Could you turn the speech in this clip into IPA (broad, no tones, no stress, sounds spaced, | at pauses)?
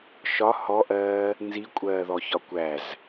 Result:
ʃ ɒ h ɔ ʔ ɜː | n z i kʷʼ ɜː ð ɔ ç ɒ kʷ æ z